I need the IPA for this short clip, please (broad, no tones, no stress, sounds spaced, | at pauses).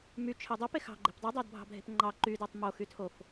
m y t͡ʃʰ e dˤ o p e x ɑ̤ ɡ͡ǃ e̤ p dˤ u dˤ ɑ d bʱ ɑ̤ bʱ e̤ p ŋ͡ǃ ɑ ǃ y d e tˤ m o x y tʰ o f